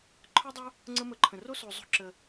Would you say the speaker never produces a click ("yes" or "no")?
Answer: no